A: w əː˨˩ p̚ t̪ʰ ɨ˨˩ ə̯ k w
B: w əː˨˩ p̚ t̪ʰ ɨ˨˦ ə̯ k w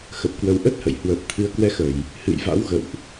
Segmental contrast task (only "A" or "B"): B